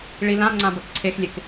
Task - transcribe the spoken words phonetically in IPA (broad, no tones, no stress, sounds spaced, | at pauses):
ɭ i l ã ŋ͡ǀ ã b ɐ k ǀʰ e x lʲ e k